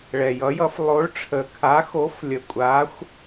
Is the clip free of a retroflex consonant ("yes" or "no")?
no